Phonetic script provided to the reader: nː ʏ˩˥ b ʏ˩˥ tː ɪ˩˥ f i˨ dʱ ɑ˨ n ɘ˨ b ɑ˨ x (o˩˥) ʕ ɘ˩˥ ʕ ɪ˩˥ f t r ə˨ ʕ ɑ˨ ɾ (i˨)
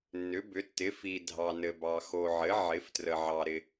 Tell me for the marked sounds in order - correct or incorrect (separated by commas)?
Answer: incorrect, incorrect